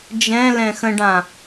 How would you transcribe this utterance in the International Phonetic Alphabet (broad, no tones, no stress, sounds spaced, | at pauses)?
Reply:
d͡ʒ ɛ̃ l ɛ̃ x ə̃ ɖ ã